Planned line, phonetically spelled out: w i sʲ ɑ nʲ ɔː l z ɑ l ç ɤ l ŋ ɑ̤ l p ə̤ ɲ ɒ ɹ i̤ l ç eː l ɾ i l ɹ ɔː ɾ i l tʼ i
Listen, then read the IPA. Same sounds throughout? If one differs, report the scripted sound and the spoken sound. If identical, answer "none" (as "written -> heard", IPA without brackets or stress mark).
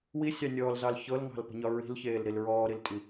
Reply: none